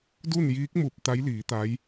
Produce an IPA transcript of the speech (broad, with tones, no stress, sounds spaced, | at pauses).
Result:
d u˥˨ n j iː˧˥ k̚ m u˧˩ p̚ t̪ a˧˥ j l iː˩˧ t̪ a˧˥ j